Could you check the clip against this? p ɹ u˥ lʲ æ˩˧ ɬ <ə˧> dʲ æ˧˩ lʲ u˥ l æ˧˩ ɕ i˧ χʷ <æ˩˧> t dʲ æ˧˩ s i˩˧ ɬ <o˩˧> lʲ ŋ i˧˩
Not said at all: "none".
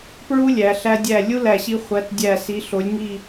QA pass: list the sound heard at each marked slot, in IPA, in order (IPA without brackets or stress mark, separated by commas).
æ˧, æ˩˧, o˩˧